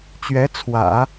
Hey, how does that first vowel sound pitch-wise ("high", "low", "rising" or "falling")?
rising